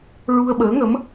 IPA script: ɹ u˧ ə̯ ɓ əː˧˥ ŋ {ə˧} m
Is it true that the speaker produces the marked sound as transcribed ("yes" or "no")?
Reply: no